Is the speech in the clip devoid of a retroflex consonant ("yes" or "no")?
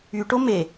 no